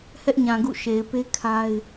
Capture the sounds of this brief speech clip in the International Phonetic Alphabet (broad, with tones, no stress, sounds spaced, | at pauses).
h ɛ˦ ʔ ɲ ã˨ ɡ ṵ˦˨ ʃ e˨ ɪ̯ p e˦ kʰ a˦ ɪ̯